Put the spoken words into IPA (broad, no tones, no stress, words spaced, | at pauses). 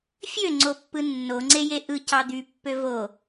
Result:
fʲøŋ͡ǀopːɯ nːoŋ͡ǀeje ʔɯ cɑd̪ypːø vo